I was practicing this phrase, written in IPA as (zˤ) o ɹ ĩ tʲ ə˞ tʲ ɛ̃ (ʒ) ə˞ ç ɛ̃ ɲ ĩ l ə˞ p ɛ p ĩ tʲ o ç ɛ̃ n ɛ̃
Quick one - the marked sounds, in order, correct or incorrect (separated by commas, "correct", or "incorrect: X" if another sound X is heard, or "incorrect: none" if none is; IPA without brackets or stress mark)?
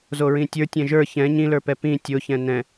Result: incorrect: z, correct